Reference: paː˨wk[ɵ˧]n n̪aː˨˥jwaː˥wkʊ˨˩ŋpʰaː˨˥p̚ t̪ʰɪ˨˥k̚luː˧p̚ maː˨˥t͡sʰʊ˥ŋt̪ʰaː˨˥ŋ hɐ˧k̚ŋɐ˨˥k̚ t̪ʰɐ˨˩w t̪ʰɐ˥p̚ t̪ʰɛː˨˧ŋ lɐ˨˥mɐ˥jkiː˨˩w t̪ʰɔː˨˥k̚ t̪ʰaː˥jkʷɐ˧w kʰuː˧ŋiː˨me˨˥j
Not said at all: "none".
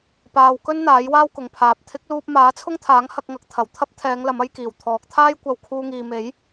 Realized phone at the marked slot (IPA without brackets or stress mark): ɵ˥